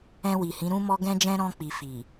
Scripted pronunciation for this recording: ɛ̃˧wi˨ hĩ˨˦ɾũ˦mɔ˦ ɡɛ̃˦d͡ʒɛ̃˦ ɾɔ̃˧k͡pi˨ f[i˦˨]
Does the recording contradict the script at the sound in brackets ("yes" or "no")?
yes